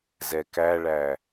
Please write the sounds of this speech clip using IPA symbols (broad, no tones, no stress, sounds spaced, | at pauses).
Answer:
z ɛ k æ ɭ æ